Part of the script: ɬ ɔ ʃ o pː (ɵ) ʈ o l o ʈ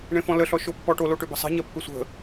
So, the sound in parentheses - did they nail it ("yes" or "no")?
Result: no